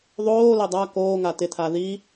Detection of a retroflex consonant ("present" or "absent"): absent